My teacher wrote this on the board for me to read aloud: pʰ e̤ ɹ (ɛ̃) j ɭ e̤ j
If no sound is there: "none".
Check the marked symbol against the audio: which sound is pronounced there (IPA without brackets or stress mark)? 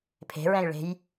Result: ɛ̃